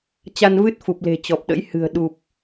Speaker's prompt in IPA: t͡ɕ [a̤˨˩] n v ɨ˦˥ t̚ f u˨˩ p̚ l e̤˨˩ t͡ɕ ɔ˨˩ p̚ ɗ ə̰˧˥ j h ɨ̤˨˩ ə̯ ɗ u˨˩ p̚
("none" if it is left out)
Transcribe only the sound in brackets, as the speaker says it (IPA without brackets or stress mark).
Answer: a˧